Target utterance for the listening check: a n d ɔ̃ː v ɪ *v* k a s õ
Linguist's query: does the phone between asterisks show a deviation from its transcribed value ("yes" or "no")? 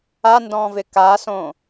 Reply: yes